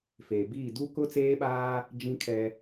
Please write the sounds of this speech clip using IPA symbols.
f eː˨ b iː˦˨ d u˦ k ʊ˦ t͡s eː˦ ɓ aː˦ | d͡ʒ ĩ˦ kʰ ɛ˦

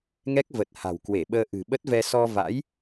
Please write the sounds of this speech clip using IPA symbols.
ŋ ɛ˦˥ k̚ v ə˨˩ t̚ h a̤˨˩ w k w e˧˩ ɓ əː˧ ʔ ɨ̤˨˩ ɓ ə˦˥ t̚ v ɛ˧ s ɔ˧ v a̰˧˥ j

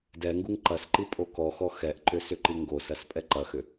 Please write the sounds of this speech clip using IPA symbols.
d ɛ ŋ ɡ u ŋ ǃ ɐ s ǃ i pʼ o k ɔ x ɔ x ɛ ʔ ǃ ʏ s ʏ ǃ i ŋ ɡ o s ɐ s pʼ ɛ ǃ ɐ x ʏ

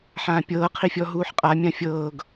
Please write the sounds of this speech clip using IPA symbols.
ħ ãː pʲ ɤː qʰ i fʲ ɔ ɦ uː ħ qʼ a mʲ ã fʲ ɤː ɡ

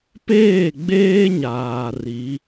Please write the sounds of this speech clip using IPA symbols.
p eː˦˨ ɡ͡b eː˦ ɲ aː˨ r i˨˦

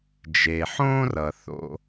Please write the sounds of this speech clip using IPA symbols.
d͡ʒ e˨ ħ õː˦ r ʌ˨ θ o̰˧

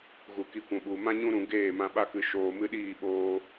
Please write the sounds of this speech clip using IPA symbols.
ɣ u˨ k i˧ kʷ ũ˨ ɓ u˨ m ã˦ ɲ ũ˦ ɾ ũ˧ ɡ eː˦˨ m ã˧ ɓ a˦ k ɨ˧ ʃ oː˧ m ɨ˦ ɗ iː˦˨ ɓ oː˧

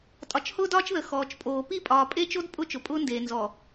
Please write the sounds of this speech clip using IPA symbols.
tʼ ɒ˨ t͡ʃ h ʊː˦ d ɒː˦ t͡ʃ ð ə˨ x ɔː˨ t͡ʃ pʼ oː˨ p i˦˨ pʼ ɒː˨ pʼ e˦ t͡ʃ o˦ d pʼ ʊ˦ t͡ʃ ʊ˨ pʼ ʊː˦ n d eː˨ n z ɔ˨

